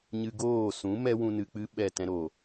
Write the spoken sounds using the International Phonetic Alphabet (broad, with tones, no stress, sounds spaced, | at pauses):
ɲ ɨ˧ ɡ oː˦˨ s ũ˨˦ m ɛ˦ w ũ˧ n ɨ˨ k͡p ɨ˦ ɓ ɛ˦˨ t ɛ̃˦ ɾ o˨